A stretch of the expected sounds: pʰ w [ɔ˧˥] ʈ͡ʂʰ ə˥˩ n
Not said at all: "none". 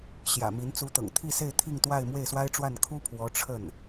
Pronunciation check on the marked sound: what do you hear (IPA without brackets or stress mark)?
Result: ɔ˧˥